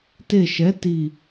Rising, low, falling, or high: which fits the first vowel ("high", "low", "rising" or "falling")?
falling